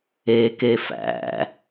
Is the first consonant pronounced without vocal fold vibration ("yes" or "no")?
yes